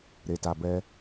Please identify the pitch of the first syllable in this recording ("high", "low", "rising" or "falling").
low